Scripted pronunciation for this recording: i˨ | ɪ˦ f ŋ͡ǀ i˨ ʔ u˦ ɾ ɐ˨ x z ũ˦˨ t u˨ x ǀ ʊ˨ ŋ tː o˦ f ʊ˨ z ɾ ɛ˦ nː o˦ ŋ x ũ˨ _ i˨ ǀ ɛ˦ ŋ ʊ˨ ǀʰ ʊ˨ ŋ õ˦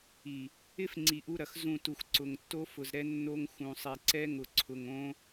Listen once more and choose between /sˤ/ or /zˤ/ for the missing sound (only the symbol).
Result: sˤ